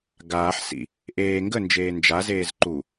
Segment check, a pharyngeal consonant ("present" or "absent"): present